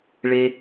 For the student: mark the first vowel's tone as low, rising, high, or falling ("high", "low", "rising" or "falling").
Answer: high